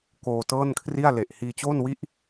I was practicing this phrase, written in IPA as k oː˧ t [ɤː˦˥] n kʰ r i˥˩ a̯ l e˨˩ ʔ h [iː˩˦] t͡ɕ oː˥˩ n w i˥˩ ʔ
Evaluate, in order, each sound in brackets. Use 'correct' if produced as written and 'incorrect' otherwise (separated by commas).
incorrect, incorrect